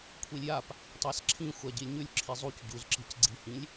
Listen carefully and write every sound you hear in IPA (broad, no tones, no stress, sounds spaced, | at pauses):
kʷʰ i lʲ j a p | tˤ a s ǁʰ ĩ xʷ a ɟ i lʲ ɲ ʉ lʲ ǁʰ i zˤ u c ɟ u z ǁ i̤ c ɡ͡ǀ i̤ h ĩ lʲ